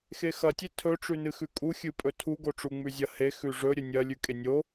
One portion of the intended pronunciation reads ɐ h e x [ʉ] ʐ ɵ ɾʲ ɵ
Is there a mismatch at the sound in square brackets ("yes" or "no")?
no